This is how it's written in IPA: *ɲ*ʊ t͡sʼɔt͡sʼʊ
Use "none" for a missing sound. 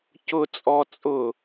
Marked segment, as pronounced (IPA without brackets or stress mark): c